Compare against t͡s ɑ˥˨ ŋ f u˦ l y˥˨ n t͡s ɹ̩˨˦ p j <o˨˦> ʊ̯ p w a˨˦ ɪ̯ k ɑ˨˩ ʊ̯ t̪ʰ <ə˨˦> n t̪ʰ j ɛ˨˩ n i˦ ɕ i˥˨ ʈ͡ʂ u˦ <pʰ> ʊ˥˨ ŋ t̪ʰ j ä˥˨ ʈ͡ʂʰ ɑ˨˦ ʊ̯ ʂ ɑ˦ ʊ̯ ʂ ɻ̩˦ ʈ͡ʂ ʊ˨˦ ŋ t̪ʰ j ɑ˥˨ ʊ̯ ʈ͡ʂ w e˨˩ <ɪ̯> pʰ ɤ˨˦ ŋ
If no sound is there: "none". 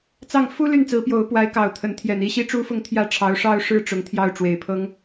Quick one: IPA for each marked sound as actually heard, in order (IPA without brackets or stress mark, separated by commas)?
o˨˦, ə˨˦, f, ɪ̯